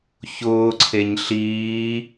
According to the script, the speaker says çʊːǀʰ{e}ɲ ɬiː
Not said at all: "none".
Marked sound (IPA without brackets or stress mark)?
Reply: e